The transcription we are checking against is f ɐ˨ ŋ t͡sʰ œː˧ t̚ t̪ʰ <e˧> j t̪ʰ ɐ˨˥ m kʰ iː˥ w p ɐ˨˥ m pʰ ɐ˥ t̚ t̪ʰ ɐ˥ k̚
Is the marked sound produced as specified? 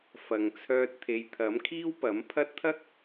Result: no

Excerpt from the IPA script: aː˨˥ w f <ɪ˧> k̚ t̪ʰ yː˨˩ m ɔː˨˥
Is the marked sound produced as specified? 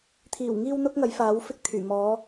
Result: no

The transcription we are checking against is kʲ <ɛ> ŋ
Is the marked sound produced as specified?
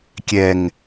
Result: yes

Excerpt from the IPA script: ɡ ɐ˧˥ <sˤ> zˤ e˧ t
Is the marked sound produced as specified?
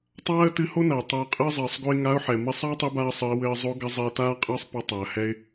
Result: no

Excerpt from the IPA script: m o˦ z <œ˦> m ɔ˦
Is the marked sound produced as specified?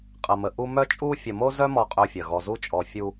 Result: yes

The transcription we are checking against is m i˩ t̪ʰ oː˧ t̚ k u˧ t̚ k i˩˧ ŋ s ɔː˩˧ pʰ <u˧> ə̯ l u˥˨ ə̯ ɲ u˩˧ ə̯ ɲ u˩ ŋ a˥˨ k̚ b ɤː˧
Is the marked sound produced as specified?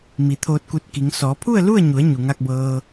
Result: no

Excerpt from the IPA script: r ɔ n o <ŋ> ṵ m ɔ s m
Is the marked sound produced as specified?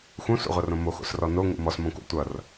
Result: yes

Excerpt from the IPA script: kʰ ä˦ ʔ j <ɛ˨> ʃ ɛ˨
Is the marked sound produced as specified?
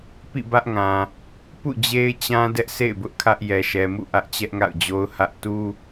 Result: yes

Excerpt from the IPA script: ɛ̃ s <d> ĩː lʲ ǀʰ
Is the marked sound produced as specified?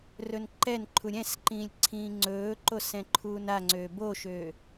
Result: no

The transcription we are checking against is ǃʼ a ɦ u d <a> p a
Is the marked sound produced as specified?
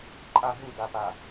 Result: yes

